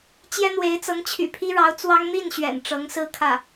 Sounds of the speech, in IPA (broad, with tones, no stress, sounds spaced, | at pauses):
t͡ɕ j ɛ˥ n̪ w e˧˥ ɪ̯ t͡s ɤ˧˥ ŋ t͡ɕʰ y̰˨˩ pʰ i˥ ɻ ɑ˧˥ ʊ̯ t͡s w ɑ˥ ŋ n̪ i˥˩ n ɕ ɥ ɛ̰˨˩ n ʈ͡ʂ ɤ˧˥ ŋ s ɹ̩˥˧ kʰ ä˥˩